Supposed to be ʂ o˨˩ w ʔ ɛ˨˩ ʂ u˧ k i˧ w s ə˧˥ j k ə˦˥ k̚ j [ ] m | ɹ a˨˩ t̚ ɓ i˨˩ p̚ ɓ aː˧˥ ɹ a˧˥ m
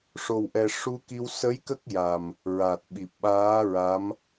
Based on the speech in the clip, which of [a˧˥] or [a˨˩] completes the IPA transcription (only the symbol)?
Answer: a˨˩